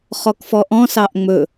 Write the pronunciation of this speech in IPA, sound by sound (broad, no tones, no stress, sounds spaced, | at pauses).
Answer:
χ ɔ k f ɔ ʔ ɔ̃ s ɑ ʔ ŋ͡m ɵ